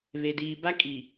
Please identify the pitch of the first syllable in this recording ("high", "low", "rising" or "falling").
low